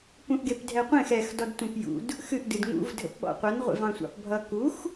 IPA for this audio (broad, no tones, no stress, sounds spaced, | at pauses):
p ũ ʔ ɡ e p dʱ ɛ qʷ ẽ x ɛ x d ɔ d tʷ ẽ p j ṵ d | x ɨ ʔ d ɨ d ŋ ṵ v dʱ ə̰ p ɓ ɔ̰ qʷ ʌ n ʁʷ ḛ v ɑ̃ sʷ ɑ̰ p bʱ ʌ k u x